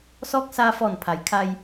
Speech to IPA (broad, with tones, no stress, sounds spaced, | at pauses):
s ɔː˧˥ k̚ s aː˧ f ɔː˧˩ n pʰ a˩ j kʰ a˧ j